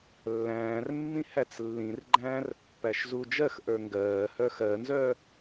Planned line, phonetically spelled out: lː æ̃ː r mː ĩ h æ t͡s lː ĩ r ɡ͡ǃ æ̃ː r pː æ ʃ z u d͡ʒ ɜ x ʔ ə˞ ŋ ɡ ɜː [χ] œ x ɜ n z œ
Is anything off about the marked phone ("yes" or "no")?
yes